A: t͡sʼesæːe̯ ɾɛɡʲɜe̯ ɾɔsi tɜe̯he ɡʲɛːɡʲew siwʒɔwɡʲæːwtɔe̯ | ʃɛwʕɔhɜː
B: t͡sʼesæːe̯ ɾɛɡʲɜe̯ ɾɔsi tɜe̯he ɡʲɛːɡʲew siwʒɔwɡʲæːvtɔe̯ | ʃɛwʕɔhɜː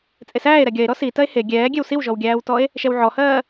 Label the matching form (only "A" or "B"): A